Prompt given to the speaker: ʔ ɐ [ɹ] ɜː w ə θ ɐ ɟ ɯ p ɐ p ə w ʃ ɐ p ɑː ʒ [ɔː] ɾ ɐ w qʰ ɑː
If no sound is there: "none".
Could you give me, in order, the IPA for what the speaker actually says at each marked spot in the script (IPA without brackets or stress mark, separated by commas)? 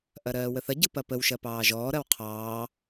ɾ, ɔː